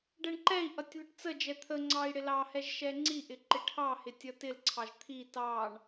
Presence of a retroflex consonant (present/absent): present